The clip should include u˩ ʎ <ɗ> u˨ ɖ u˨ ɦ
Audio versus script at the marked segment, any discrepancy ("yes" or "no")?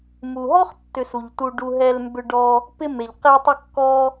yes